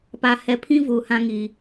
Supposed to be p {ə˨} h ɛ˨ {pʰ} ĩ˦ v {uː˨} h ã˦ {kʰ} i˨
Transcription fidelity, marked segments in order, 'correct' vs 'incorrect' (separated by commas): incorrect, correct, incorrect, incorrect